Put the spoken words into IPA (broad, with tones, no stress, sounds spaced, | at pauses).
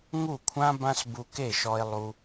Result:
ŋ u˦˨ kʷʰ ã˦ b ã˦ s b u˧ k e˦˨ ʃ ɔ˧ e̯ lˠ u˧